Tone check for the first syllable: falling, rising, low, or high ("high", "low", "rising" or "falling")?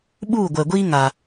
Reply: falling